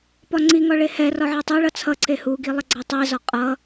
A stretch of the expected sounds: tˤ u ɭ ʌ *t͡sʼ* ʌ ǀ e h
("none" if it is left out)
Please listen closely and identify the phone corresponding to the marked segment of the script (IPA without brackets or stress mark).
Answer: t͡sʰ